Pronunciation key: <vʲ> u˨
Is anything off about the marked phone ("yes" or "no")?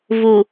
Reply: yes